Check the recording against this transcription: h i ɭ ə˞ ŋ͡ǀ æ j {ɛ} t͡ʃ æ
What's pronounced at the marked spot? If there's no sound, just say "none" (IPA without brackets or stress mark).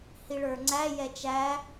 ɛ